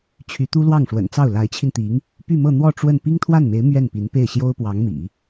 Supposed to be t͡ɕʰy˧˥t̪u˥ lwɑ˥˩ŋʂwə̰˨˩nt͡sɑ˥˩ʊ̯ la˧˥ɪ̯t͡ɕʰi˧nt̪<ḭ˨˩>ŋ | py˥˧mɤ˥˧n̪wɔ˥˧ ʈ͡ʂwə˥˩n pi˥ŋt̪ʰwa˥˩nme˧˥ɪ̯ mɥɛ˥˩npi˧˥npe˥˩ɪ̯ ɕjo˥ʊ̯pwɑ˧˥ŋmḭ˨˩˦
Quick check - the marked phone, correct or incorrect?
incorrect